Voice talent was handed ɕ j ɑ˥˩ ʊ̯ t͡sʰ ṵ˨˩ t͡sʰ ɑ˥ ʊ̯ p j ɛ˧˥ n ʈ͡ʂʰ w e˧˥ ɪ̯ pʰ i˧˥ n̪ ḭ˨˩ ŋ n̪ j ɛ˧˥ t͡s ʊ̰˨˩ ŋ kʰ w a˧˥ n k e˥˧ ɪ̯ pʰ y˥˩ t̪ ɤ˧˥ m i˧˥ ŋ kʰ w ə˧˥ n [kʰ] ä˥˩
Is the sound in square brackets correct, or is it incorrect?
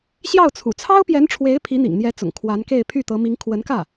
incorrect